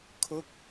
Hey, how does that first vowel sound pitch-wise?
falling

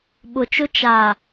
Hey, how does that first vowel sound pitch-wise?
low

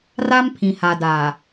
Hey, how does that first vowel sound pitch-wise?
high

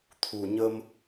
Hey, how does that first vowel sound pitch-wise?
low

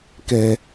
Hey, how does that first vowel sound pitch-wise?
low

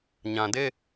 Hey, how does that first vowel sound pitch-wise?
low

